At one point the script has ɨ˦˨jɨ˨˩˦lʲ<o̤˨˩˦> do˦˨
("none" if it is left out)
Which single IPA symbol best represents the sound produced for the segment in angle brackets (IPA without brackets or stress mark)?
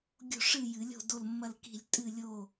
o̤˦˨